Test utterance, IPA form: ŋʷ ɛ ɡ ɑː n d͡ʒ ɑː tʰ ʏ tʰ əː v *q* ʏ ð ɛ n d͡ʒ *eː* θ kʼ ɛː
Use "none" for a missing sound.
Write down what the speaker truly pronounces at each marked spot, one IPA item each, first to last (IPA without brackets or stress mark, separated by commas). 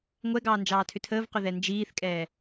q, iː